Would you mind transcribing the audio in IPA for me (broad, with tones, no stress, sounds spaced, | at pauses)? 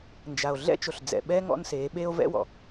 n d͡ʒ a˨ o̯ ɮ ɛ̰˦ t͡ʃ o˨ ɬ d͡z ɛ̰˨ ɓ ɛː˦ ŋ ɔ̰˦ n s eː˨˦ ɓ eː˦ o̯ v ɛ̰˦ w ɔ̰˨